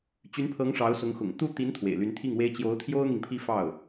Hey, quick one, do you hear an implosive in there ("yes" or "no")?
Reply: no